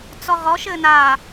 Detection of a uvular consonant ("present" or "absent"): present